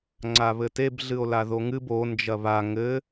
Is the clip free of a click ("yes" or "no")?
no